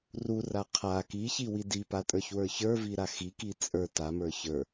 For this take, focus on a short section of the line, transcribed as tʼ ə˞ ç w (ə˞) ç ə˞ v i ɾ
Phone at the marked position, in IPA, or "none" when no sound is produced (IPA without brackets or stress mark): ə˞